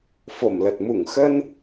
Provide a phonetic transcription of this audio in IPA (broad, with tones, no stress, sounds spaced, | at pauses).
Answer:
f o˧˩ m l ə˨˩ t̚ m u˧˩ ŋ x ə˧ n